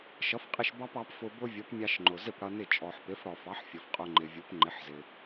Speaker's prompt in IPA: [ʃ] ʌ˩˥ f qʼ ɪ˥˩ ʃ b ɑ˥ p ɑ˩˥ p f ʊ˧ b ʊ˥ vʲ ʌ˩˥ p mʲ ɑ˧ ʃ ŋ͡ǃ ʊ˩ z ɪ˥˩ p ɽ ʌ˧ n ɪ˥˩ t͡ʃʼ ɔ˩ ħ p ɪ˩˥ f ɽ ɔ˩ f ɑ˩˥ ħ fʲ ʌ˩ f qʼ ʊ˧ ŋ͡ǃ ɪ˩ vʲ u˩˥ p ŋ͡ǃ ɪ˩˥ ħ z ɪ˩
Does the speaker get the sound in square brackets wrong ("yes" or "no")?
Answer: no